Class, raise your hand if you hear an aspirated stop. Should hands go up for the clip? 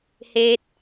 no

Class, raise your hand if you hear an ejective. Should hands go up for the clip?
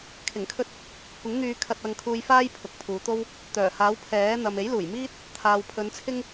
no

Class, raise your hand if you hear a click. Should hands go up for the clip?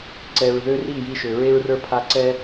yes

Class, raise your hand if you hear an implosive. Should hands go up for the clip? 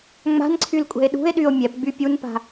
yes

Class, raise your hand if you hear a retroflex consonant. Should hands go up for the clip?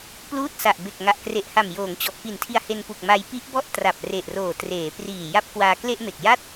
no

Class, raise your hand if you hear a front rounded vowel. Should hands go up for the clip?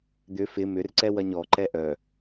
yes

